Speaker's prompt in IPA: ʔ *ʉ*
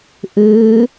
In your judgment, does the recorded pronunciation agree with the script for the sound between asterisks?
yes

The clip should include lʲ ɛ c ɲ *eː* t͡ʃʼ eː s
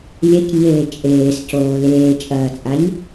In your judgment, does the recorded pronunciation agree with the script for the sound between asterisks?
yes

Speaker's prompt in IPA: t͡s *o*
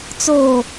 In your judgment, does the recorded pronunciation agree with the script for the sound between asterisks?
yes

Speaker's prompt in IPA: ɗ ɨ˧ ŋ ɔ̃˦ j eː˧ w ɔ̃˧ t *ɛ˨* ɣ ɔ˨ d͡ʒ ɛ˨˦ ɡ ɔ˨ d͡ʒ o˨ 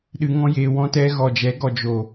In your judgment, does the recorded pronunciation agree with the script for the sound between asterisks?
no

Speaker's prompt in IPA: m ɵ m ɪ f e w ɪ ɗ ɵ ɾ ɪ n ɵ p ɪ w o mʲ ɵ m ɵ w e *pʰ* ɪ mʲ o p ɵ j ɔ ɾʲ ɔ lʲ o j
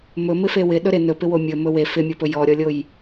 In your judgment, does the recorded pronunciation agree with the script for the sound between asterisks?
no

